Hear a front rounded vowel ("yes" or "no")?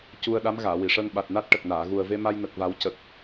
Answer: no